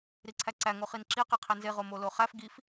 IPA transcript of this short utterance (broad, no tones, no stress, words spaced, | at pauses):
ɾiǀʰæǀæ ŋoχinǁi qiqʰenze ʁomoloχæf ɡif